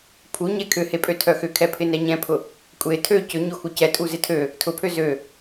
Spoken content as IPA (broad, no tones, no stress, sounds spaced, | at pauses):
pʰ u ɲ ɛ kʰ ʏ h e pʼ ø tʰ œ x ʏ kʰ ɛ pʰ ɪ n ɛ ɲ ɛ̃ pʰ ʊ | kʷʼ e tʰ ø c ʏ ɲ o x u c ɛ tʼ u z ɪ tʰ ø | tʰ ʊ pʰ ø z ø